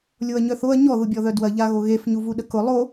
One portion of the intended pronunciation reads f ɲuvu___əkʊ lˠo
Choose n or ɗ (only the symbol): ɗ